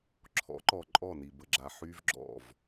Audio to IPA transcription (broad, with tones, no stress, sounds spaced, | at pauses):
ǁʰ ɔ̰˨˦ ǃ ɔ˨ ǃʼ ɔ˦˨ n i˨ b ə˨ ɡ͡ǁ a˨ ħ y˦ v ɡ͡ǁ ɔ̰˦˨ v